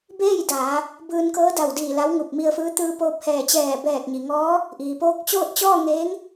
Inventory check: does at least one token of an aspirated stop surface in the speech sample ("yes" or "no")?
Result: no